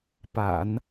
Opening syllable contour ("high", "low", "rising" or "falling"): low